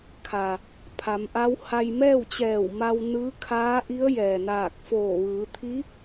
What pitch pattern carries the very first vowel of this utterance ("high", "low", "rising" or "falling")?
low